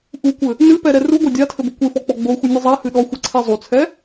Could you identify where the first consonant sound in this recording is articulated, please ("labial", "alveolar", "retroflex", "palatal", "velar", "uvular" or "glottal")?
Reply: glottal